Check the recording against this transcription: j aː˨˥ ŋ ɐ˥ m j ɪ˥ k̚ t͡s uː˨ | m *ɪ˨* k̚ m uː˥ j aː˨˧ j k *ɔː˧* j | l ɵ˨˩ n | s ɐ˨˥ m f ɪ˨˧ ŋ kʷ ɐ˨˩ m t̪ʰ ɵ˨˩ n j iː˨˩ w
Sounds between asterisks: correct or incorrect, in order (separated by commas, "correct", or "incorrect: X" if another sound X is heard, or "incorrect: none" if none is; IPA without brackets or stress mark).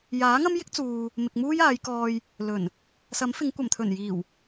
correct, correct